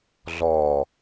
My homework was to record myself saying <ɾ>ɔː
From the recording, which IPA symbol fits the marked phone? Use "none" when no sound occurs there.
ɮ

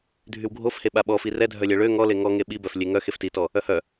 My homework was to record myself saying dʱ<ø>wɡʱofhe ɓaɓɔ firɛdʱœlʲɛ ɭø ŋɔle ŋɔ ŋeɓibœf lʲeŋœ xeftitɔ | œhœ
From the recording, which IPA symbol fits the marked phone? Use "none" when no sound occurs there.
y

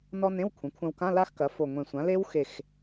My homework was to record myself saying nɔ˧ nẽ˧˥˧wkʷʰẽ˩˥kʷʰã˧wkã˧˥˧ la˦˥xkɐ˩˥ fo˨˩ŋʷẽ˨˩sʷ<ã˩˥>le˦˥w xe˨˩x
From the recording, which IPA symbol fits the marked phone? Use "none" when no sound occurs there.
ã˩˥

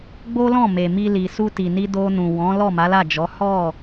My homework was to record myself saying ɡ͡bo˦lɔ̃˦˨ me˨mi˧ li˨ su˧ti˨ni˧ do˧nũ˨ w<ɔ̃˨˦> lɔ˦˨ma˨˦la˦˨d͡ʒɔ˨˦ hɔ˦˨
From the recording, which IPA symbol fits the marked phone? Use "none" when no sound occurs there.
ɔ̃˨˦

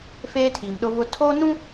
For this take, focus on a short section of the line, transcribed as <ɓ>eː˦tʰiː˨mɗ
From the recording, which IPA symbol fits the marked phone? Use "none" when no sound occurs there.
f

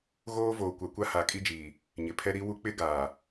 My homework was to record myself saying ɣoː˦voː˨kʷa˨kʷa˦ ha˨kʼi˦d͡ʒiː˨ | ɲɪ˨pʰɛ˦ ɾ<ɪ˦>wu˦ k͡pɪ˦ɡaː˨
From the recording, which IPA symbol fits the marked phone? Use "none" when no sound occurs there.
i˦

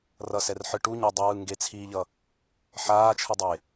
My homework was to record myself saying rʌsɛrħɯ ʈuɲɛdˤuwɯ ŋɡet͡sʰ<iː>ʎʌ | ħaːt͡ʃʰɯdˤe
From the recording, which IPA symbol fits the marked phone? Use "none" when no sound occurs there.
iː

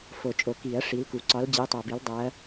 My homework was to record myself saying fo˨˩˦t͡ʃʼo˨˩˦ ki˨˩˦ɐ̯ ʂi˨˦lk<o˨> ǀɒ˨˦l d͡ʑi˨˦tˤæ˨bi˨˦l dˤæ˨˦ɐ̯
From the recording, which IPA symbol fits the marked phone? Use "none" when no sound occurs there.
u˨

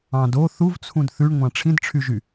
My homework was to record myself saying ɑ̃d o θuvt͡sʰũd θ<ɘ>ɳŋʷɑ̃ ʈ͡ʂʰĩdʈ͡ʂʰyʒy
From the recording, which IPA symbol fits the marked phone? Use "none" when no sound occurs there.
ʉ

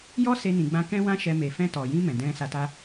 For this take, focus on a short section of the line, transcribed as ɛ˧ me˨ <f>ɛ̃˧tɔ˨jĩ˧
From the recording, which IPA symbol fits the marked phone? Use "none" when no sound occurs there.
f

